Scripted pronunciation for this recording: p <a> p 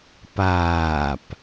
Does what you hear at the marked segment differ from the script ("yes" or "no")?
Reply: yes